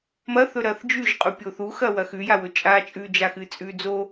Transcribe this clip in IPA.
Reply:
m ɐ θ ɵ ɾ ɐː θ d͡ʒ ʉ ʒ qʼ u pʲ o θ u x ɐ w ɐ x ʉ j a w ɵ t͡ʃʼ aː t͡ʃʼ ʉ d͡ʒ a x ɨ t͡sʼ ʉː d͡z o

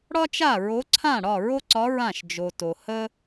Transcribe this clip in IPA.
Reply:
ɽ ɒ˥ t͡ʃ a˥˨ ɹ o˧˥ ǀʰ ã˥˨ ɽ ɒ˥˨ ɹ o˥ ǀ ɒ˧˥ ɹ ã˥˨ ʃ d͡ʒ o˨ t o˨ h ə˥

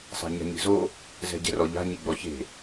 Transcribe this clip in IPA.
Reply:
sˤ e̤ ɲ a̤ ɲ i̤ z o | z ɛ̤ ɟ ɛ̤ r ɔ ʎ a̤ ɲ i ɡ͡b ɔ ç e̤

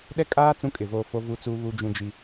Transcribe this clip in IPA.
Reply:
ɗ ɛ˦ kʼ aː˦ t͡s ũ˦ kʼ ɪ˨ v oː˦˨ f o˦ v u˦ t͡s uː˦ β u˦ d͡ʒ ũ˦ d͡ʒ i˦

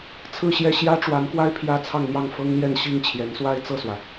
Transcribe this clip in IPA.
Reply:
t͡sʰ ɹ̩˥˧ ɕ j ɛ˥˩ ɕ j ä˥ ʈ͡ʂ w a˧˥ n k w a˥ ɪ̯ pʰ j ä˥ t͡sʰ ɑ˥˧ ŋ n̪ j ɑ˥˩ ŋ f ɤ˥ ŋ l j ɛ˥˧ n ɕ i˥˩ ŋ t͡ɕʰ j ɛ˧˥ n s w a˥ ɪ̯ t͡s ɤ˥˩ s w ä˩

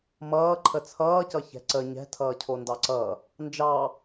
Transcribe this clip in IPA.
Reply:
m ʌː ǃʰ ə t͡sʰ ʌː c ʌ ç ɛ̤ ǀ ə ɲ ɛ̤ tʰ ʌː cʰ o n d ɑ ǀ ʌ | n d͡ʒ ɑ

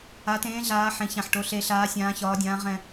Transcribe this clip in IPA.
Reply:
a˩˧ t ẽː˩˧ ɮ aː˩˧ ħ ẽ˩˧ ç ã˨˩ ħ ʈ o˩˧ ɬ e˩˧ ɬ aː˩˧ sʲ ãː˩˧ ç ɒː˩˧ dʲ ãː˩˧ ʁ ɛ̃˨˩

